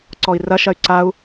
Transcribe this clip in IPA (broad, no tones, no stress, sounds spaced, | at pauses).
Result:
ǀ ɔ i̯ r ɐ ʃ ɐ y̯ ǀ a u̯